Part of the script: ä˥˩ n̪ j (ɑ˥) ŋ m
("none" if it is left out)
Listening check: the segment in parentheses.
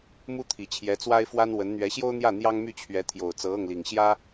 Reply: ɑ˥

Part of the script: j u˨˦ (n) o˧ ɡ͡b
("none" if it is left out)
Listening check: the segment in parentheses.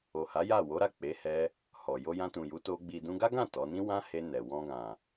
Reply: t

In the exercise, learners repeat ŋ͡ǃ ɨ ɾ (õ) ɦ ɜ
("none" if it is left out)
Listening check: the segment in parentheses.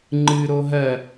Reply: o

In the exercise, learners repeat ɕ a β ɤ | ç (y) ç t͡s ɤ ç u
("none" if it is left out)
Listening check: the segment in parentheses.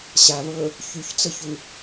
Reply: y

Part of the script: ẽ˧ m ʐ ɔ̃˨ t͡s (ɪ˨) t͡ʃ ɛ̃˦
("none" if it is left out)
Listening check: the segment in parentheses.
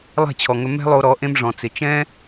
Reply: ɪ˨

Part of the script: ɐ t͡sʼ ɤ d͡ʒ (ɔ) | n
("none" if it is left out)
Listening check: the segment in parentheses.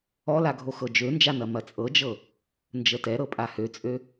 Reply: ɤ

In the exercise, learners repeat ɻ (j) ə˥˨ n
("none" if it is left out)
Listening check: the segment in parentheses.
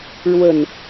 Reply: w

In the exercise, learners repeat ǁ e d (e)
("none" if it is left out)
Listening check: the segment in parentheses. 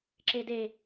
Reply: e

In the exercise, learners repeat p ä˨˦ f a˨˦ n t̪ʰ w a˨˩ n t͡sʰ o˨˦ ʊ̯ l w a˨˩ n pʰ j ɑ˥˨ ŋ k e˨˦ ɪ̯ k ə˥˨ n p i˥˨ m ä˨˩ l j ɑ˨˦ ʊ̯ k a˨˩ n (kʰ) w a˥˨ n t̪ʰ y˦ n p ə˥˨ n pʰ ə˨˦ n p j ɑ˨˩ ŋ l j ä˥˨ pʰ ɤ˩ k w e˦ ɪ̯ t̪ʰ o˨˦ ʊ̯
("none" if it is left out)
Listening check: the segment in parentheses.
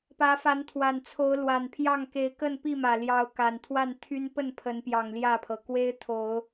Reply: t̪ʰ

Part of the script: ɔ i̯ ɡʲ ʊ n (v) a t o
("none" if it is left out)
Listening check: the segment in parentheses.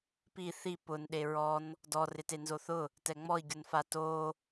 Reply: f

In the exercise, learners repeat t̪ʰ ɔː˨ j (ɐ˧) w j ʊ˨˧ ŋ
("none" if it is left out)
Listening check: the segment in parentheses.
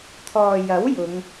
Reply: ɐ˨˥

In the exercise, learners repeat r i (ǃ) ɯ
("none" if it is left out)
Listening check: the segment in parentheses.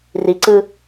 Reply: ǀ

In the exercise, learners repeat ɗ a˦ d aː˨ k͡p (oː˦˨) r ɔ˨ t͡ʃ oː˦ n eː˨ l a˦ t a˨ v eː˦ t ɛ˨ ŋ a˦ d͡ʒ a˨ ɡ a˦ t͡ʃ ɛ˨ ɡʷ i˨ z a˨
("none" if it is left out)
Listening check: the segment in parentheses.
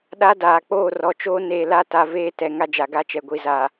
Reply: oː˦˨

